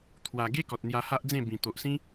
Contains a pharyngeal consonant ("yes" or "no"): no